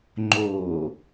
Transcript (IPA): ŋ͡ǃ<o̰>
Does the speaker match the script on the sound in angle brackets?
no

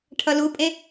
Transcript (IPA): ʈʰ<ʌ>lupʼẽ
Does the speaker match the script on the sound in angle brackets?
yes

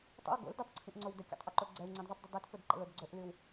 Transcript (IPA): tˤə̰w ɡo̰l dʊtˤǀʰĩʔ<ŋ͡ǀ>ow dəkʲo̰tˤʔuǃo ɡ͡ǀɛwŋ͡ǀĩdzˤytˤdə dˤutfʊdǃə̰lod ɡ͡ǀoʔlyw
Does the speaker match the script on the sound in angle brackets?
yes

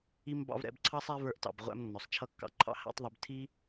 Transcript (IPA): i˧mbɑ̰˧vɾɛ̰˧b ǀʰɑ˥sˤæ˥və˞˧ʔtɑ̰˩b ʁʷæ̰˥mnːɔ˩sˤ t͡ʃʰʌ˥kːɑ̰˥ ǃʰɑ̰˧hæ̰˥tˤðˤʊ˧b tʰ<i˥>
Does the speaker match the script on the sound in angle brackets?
yes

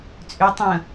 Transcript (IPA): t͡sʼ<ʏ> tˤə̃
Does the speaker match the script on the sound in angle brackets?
yes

